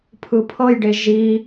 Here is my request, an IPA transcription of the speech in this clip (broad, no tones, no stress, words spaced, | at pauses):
pʰɯpʰɤjɖe ʒi